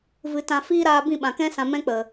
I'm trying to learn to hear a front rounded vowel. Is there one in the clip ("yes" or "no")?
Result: no